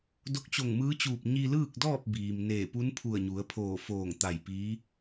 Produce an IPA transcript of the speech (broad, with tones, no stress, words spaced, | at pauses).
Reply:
do˧˥k̚t͡ɕo˧˩ŋmɯː˧˥t͡ɕuː˧˩p̚ ɲi˧lɯː˥˨k̚dɔː˥˨p̚ biː˩mneː˧˩ pu˧˥npʰu˧˩ə̯ɲu˩˧ə̯pʰoː˧˩ foː˧˩ŋ t̪a˧˩jpiː˧˥